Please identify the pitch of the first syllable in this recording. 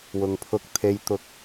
low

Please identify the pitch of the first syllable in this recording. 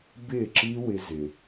falling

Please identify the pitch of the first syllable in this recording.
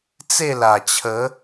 falling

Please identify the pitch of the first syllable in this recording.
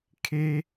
high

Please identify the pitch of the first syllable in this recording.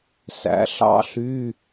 rising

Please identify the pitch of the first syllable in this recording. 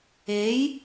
rising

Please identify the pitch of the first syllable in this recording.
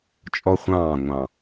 high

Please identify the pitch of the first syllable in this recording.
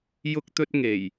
high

